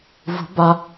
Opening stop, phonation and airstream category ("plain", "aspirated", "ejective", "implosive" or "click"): plain